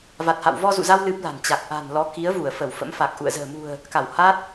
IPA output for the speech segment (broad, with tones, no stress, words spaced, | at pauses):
va˨˩t̚ha̰˧˨w vɔ˧zṵ˧˨za˧w lɨ˦˥p̚la̤˨˩n t͡ɕa˨˩k̚ʔa̤˨˩nlɔ˨˦ ki˨˦ə̯vu˧˩ə̯ fə˧˩wfə̰˧˥mfa˨˩k̚ ʔṵ˧˨ə̯zə̤ː˨˩ mṳ˨˩ə̯ | ka˧˩wha˦˥t̚